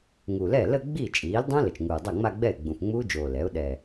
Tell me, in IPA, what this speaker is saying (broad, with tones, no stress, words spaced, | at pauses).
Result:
ŋu˨˩lɛ˥˩ lə˥˧ɡ͡bi˥˩ t͡ʃʼiː˩˥ldˤõ˦˥ lə˨˩t͡ʃŋuː˨˩ dˤa˥˩ŋ͡ma˥˧ɡ͡bɛ˥˩ɪ̯ ɡ͡bũ˨˩fŋ͡muː˦˥d͡ʒoː˨˩ lɛ˩˥ʊ̯ ɗɛ˨˩